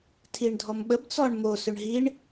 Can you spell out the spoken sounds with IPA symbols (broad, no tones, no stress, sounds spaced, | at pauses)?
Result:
tʰ i ɳ dʱ ɔ m ɓ ə b t͡s ɔ ɳ m o s ʏ ɳ ɦ i ɳ